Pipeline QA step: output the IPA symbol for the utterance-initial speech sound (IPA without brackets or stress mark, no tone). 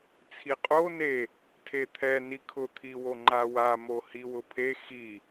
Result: t͡sʰ